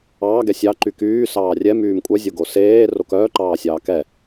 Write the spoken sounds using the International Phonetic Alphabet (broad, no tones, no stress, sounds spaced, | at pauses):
ɑː ɡ ɛ sʲ ɑ ǃ y k yː s ɑː rʲ ɛ m yː m kʷʼ œ zʲ o ɡ o s eː r o k œː ǃ ɑː sʲ ɑː k ɛ